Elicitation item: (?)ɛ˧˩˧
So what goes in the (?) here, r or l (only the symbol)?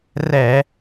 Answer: r